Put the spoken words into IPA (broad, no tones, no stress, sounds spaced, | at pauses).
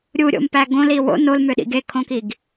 ɾʲ u ɾʲ o̰ m p æ ɡ õ l i w o̰ n o l m ø ɗ ḭ ɡ e kʰ õ k i ɡ